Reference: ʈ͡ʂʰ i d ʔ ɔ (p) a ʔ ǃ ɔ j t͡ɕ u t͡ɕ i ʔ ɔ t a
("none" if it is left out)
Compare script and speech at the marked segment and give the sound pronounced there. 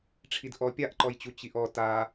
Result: pʲ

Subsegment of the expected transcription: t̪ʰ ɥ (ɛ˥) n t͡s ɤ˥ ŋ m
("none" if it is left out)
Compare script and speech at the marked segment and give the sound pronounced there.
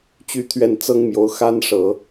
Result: ɛ˥˩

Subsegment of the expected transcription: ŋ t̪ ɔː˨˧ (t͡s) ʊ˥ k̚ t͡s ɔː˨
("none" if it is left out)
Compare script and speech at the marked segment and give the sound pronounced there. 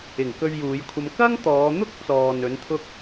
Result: n̪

